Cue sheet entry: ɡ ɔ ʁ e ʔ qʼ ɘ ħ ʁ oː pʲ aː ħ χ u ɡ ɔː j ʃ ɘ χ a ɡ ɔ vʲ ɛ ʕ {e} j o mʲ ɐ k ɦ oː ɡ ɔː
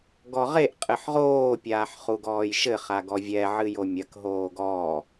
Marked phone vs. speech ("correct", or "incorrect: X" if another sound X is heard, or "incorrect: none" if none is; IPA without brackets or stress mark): incorrect: ɨ